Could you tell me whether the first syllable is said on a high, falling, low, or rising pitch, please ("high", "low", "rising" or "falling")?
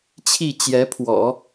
falling